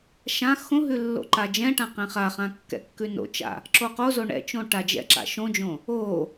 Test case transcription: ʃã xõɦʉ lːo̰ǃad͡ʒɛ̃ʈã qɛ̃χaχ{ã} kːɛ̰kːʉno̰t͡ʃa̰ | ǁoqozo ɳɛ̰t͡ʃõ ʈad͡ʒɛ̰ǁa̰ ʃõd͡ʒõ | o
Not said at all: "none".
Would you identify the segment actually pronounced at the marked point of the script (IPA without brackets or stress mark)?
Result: ã